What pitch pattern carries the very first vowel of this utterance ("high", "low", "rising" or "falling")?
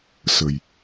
low